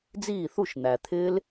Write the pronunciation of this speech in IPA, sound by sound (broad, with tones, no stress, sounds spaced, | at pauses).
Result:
d͡z iː˥˩ θ u˥˩ ʃ n̪ æ˩ t̪ʰ ɪː˦˥ l